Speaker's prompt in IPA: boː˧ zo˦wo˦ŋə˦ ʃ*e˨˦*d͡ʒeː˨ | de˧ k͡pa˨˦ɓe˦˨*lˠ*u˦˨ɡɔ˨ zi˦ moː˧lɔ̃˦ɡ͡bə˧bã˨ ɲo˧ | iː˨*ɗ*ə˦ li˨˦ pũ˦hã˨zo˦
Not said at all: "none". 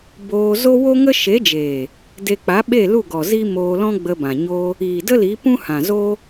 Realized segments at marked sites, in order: e˨˦, l, d

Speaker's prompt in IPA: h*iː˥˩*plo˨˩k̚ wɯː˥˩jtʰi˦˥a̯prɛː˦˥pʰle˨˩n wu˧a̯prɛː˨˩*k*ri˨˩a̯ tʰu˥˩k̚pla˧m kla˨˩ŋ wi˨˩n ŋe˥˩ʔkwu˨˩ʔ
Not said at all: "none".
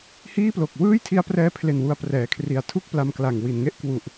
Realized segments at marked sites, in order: iː˥˩, kʰ

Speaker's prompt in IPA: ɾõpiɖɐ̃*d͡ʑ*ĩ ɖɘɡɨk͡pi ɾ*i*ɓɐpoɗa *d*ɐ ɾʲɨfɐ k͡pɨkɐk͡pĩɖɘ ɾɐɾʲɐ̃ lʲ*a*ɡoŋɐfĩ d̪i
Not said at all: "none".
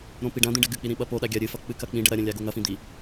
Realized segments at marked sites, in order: d̪, ĩ, ɡʲ, a

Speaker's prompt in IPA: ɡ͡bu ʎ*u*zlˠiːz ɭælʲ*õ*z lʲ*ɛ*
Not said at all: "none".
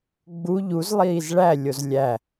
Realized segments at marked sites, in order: u, o, æ

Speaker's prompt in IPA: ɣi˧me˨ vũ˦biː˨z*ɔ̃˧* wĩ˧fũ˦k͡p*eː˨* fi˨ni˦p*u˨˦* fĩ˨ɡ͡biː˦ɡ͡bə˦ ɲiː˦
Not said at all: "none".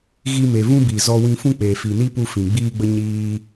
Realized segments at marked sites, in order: ɔ˧, eː˨, u˧

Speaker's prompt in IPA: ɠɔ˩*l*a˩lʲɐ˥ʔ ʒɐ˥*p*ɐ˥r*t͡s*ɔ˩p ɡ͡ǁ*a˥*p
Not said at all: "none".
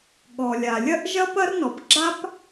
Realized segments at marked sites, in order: lʲ, p, n, a˥

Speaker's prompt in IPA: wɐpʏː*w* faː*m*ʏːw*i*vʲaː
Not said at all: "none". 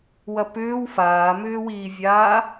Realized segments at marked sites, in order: w, m, iː

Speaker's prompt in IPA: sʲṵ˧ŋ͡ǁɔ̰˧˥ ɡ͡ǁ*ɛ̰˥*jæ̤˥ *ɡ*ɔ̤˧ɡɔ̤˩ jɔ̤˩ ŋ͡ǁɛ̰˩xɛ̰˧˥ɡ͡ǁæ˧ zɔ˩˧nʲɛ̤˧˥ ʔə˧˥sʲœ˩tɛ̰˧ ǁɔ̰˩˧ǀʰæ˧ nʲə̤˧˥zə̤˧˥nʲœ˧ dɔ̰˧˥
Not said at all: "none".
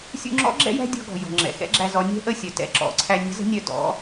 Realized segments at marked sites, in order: ɛ̰˥, dʲ

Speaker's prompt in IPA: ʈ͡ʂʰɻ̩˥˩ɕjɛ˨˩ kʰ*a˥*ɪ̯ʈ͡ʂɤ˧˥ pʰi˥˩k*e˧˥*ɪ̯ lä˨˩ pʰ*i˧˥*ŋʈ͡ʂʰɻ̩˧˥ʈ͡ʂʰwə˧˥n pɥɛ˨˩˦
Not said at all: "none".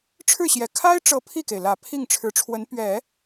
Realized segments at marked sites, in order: a˥, e˩, i˥˩

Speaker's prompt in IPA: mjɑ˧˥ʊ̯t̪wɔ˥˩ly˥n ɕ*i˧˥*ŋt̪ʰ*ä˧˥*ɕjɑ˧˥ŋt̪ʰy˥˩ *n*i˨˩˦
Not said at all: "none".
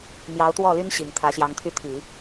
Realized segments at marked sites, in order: i˨˩, ä˧˥, t̪ʰ

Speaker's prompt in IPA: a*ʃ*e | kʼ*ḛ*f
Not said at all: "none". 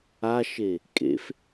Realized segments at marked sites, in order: ʃ, ḛ

